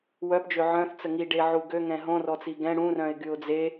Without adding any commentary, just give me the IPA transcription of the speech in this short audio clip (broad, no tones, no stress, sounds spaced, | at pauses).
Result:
w œ p d͡ʒ ø ʕ œ̃ θ t͡s ə ŋ i ɖ e ʕ u ɡ ø ŋ ɛ̃ ɦ õ r ɔ t͡s i ɡ ɛ̃ ɽ ũ r œ̃ ɪ̯ ɡ y ʊ̯ d͡z e